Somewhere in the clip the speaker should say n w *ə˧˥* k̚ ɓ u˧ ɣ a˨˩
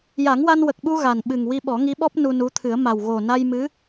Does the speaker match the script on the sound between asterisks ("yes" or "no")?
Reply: no